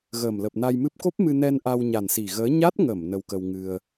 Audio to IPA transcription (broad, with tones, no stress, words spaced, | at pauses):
ɣəː˨˩mlə˨˩p̚na˧jmɨ˦˥p̚ ko˦˥p̚mɨ˧nɛ˧n ʔa˧wɲa˨˩nsi˨˩ɣəː˨˦ ɲa˦˥t̚ŋə˧˩m nə˧wkə˧wŋɨ˧ə̯